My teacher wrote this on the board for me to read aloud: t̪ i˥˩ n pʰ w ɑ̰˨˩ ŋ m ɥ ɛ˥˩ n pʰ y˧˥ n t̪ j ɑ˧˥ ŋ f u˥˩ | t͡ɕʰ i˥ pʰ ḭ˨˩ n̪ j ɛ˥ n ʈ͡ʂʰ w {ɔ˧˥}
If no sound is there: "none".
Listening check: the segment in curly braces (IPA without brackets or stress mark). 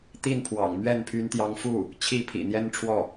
ɔ˥˩